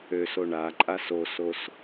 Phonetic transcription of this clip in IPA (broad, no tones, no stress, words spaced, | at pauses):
øso ɳaǃʼas osos